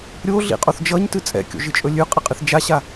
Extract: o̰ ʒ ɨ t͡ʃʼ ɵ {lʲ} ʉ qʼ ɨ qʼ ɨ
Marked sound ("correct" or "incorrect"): correct